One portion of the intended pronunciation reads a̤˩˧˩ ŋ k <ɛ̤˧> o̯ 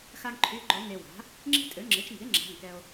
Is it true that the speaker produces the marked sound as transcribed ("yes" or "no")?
no